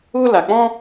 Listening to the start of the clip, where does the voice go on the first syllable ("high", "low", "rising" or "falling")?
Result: high